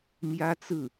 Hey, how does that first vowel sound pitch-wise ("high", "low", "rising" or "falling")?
high